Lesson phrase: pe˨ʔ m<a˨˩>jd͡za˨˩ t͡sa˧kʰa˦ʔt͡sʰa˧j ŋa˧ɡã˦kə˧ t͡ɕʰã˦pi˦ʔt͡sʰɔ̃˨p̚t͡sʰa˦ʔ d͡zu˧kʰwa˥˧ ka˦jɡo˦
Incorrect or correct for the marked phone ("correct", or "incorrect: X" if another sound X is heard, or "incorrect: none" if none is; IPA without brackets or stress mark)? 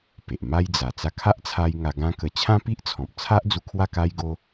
incorrect: a˦